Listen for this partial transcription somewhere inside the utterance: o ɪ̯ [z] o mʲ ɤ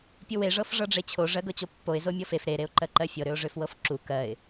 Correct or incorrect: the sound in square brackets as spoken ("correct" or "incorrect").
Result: correct